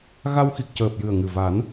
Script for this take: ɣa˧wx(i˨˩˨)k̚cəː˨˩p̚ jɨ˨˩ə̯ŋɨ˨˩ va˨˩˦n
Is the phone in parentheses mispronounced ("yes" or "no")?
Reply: yes